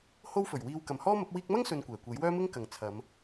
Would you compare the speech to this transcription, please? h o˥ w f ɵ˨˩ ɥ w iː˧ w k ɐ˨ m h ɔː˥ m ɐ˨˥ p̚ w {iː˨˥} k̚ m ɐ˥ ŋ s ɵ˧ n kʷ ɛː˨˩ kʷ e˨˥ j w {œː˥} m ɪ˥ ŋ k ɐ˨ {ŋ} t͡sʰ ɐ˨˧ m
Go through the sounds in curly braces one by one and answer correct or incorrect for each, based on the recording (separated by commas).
incorrect, correct, correct